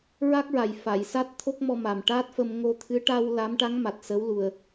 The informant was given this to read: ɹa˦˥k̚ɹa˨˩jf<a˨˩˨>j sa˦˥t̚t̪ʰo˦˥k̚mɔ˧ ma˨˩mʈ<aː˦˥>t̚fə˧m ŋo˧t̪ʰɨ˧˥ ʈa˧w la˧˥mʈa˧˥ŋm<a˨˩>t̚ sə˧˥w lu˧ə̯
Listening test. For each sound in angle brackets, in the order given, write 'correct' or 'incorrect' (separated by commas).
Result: correct, correct, correct